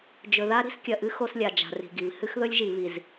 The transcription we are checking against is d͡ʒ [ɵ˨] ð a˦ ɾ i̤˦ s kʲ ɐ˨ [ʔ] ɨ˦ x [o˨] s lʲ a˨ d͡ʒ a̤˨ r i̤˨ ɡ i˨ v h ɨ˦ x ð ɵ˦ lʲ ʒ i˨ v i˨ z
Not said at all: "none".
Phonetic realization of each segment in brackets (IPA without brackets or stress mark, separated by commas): ɵ˨, ʔ, o˦